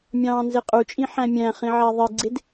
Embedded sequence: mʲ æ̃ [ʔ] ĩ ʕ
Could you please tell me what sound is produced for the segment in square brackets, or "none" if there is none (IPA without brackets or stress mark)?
χ